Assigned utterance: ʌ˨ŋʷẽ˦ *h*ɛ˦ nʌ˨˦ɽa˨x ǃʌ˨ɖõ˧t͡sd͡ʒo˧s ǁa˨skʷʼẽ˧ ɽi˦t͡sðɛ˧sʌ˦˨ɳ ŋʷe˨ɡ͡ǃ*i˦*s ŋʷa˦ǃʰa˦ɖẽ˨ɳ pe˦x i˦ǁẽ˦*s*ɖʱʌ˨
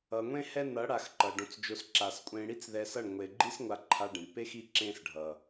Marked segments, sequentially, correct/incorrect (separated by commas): correct, correct, correct